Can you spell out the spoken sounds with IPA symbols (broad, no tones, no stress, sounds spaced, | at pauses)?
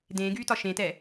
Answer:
d ẽː ɡ yː t ɒ ʃ ẽ t ɛ